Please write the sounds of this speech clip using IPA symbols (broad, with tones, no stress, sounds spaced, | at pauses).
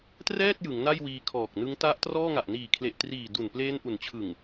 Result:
t r ɛː˥˩ t̚ j ɯ˩˦ ŋ n a˥˩ j w iː˧ kʰ ɔː˨˩ k̚ n ɯ˦˥ ŋ t a˦˥ ʔ t r ɔː˥˩ ŋ a˨˩ ʔ n iː˨˩ kʰ l e˨˩ ʔ t r iː˨˩ d u˨˩ n p l eː˦˥ n ʔ u˩˦ n t͡ɕʰ ɯ˨˩ ŋ